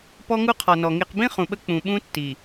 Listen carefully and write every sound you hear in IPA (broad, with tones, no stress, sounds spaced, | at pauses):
p ɔ˦ ŋ u˦ qʰ ɔ˨ n ɔ˨ ŋ i˨ q b ĩ˦ χ ũ˨ ɓ ə˦ k͡p ũ˨ ɓ ũ˦ tː i˨